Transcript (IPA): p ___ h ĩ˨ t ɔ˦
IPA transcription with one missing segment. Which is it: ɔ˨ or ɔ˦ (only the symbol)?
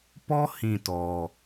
ɔ˦